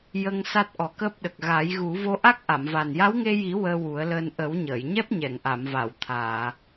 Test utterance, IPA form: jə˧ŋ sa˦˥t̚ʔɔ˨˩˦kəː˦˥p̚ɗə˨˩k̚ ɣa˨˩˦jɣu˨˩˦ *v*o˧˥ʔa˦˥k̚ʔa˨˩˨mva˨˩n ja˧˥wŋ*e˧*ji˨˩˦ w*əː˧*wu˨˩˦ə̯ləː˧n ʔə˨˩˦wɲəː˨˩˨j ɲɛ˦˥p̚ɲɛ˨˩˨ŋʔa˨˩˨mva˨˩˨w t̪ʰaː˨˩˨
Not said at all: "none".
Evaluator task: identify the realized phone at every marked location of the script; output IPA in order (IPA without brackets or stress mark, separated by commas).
v, e˧, əː˧